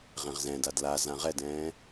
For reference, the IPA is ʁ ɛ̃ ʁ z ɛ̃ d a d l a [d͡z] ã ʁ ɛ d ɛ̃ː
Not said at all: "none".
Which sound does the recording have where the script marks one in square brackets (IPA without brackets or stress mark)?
z